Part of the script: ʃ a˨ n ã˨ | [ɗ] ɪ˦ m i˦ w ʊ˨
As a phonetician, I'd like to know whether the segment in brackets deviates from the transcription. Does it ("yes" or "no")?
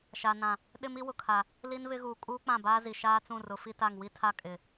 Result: no